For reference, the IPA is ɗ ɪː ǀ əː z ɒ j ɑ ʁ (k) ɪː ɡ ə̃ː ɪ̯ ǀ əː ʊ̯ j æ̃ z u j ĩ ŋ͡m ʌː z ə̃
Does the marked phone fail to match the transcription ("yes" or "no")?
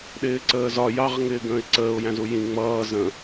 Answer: yes